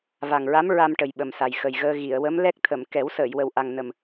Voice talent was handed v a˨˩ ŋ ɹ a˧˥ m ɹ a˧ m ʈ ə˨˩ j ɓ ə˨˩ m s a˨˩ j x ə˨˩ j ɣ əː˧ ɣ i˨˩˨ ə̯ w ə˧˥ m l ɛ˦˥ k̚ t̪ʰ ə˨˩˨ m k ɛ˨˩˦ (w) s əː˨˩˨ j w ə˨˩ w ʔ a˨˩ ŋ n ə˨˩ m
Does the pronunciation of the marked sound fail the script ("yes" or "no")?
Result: no